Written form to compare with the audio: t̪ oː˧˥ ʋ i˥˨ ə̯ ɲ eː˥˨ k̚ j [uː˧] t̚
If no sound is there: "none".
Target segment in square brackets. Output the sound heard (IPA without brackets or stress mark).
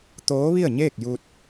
uː˧